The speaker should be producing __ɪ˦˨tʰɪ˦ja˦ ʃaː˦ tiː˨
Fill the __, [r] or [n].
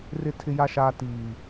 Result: r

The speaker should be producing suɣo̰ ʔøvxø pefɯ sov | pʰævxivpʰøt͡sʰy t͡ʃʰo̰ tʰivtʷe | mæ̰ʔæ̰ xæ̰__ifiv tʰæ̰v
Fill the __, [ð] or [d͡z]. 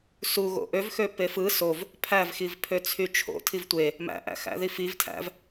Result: ð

